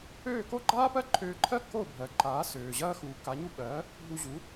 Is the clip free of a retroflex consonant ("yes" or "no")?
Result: yes